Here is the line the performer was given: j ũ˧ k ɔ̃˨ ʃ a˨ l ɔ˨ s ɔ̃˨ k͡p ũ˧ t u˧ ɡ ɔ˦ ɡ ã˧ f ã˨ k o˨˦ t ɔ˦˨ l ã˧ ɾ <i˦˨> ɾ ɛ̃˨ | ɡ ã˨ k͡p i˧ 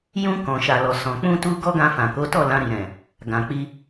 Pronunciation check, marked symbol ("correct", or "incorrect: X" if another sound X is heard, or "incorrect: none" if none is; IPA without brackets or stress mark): incorrect: i˨